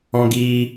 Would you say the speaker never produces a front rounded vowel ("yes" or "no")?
yes